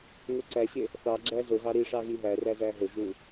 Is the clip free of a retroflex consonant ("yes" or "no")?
no